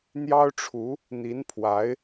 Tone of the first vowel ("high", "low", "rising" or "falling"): high